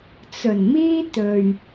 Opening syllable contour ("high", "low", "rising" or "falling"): low